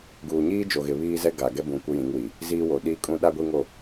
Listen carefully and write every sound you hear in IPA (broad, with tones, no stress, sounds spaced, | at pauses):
ɡ uː˨ ɲ iː˦ d͡ʒ o˨ ɣ ɪ˨ β iː˦ z ɛ˦ ɡ a˨ ɡ ɛ˦ b ũ˨ kʷ ɪ˦ j ĩ˨˦ ŋ w i˨ | z iː˦ w o˨ ɗ iː˦ kʼ ũ˦ ɗ a˦ ɡʷ i˦ ŋ o˦˨